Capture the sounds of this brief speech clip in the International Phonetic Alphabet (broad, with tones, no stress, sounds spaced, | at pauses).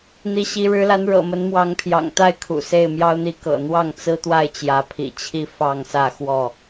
n̪ i˨˦ ɕ i˨˦ ɻ ɻ̩˨˦ l a˨˦ n ɻ ɤ̰˨˩ m ə˨˦ n m w ɑ˨˦ ŋ pʰ j ɑ̰˨˩ ŋ t̪ a˥˨ ɪ̯ kʰ ṵ˨˩ s e˥˨ ɪ̯ m j ɑ˦ ʊ̯ n̪ i˦ k ɤ̰˨˩ n̪ w ɑ˥˨ ŋ t͡s ɹ̩˦ t̪ w a˥˨ ɪ̯ t͡ɕ j ä˨˦ pʰ ḭ˨˩ t͡ɕʰ i˥˨ f ɑ˥˨ ŋ s ä˥˨ x w ɔ˥˨